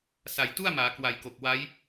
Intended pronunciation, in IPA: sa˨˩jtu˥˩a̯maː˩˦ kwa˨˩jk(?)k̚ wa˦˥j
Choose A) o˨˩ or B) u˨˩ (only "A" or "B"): A